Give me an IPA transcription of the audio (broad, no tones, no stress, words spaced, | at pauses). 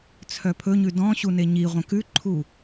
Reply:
t͡sʰœpʰɵɲʉ dɔ̃ɕu neɲiʁʷœ̃k ʉǃʰu